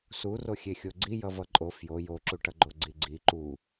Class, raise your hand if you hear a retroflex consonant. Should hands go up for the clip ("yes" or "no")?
yes